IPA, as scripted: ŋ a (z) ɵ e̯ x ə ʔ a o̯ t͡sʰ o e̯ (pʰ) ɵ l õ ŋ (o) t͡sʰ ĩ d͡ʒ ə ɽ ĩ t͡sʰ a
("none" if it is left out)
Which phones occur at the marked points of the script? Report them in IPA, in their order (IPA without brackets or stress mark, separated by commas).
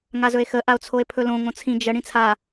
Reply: z, pʰ, õ